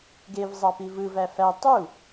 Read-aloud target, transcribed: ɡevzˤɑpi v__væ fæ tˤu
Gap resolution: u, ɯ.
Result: ɯ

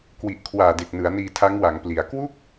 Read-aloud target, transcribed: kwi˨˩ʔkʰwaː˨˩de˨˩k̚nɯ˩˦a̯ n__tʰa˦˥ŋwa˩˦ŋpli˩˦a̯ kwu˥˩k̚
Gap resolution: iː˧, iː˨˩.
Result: iː˧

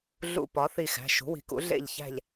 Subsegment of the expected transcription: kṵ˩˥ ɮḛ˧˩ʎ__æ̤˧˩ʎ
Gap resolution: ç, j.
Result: ç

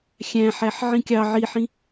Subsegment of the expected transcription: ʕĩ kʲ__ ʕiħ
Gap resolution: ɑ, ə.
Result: ɑ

